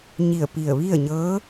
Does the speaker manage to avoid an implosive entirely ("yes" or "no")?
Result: yes